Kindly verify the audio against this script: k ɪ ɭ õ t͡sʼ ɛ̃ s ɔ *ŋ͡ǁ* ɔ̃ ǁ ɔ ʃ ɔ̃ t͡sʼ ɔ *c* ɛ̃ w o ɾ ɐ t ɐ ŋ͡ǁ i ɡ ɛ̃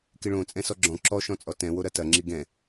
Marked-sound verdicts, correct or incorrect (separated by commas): incorrect, incorrect